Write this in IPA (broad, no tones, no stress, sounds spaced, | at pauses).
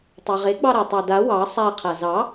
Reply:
tˤ ɑ ʁ e ɡ͡b ɑ ɾ a tˤ ɑ d a w ɑ sˤ a qʰ a z ɑ